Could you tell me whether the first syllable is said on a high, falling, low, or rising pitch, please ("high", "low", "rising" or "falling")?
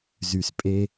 low